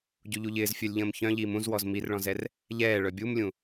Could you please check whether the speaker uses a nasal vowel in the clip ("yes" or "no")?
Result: yes